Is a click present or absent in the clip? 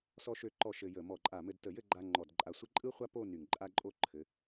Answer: present